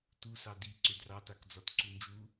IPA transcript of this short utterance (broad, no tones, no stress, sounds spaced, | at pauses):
t u s ɑ d i ǀ ʏ d r ɑ t a k d͡z ɒ t ǀ u n d͡ʒ u